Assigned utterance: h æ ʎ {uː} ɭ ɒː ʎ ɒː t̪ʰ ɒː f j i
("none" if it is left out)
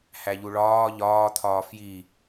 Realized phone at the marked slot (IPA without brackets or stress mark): u